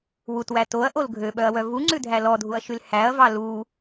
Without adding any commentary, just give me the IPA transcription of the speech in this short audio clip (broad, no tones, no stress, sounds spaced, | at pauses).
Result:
w u t w æ t o ɐ̯ ʔ o l ɡʱ ø ɓ œ ɐ̯ w œ v u ŋ͡ǀ ʉ dʱ æ l ɔ dʱ u ɐ̯ ʃ y l h æ ɐ̯ v ɑ l u